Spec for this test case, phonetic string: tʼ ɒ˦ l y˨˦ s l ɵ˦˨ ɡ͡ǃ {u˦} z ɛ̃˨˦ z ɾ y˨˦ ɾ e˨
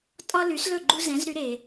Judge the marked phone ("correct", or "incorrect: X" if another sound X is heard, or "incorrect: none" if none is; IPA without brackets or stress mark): correct